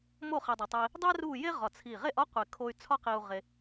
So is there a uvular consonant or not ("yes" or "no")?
yes